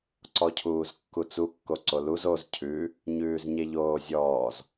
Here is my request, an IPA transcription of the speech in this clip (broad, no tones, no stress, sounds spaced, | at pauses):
ǀ ɔ cʰ uː z kː u t͡s u kː o ǀ o l u z o z cʰ ʉ | ɲ ʉː z ɲ e ʎ oː zʲ ɔː z